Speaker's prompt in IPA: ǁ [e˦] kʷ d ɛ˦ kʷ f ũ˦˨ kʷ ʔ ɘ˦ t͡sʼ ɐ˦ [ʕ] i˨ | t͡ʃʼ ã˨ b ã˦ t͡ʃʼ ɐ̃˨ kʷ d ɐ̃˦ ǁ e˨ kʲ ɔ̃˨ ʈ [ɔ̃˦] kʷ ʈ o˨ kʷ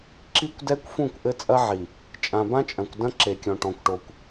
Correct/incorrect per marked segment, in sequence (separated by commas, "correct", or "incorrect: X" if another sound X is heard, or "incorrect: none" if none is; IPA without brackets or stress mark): incorrect: i˦, correct, incorrect: ɔ̃˨